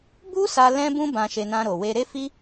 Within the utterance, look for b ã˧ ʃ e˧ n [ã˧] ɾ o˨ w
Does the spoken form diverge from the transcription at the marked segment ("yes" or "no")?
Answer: no